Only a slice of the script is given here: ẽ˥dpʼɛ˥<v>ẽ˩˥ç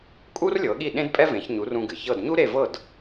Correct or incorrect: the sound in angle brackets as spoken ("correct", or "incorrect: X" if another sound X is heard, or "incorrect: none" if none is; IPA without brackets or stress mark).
correct